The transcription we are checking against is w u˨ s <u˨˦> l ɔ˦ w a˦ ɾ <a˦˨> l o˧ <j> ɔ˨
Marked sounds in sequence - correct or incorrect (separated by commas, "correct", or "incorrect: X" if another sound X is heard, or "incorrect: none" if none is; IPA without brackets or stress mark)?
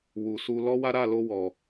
incorrect: u˧, correct, incorrect: w